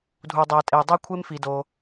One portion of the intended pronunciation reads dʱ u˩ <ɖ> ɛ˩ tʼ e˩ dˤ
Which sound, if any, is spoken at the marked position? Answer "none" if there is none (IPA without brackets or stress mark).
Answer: dˤ